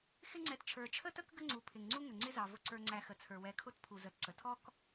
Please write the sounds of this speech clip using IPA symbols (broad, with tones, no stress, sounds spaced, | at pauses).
x ɪ˦ ŋ͡ǀ ɛ˨ t t͡ʃʰ ə˞˩ t͡ʃʰ ə˥ t ə˥ k ɡ ə˦ ŋ͡ǀ u˨ pʰ ɪ˩ ŋ ŋ͡ǀ u˥ ŋ ə˩ ŋ͡ǀ ɪ˦ z ɑ˩ v ʊ˨ ǀ ə˞˨ ŋ͡ǀ æ˨ x ə˩ t͡sʰ ə˞˩ w ɛ˨ kʰ ʊ˦ t pʰ u˩ z ə˨ t ǀ ə˩ tʰ ɔ˥ k